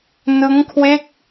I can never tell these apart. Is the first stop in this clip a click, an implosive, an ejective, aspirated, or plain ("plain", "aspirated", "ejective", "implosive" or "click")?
aspirated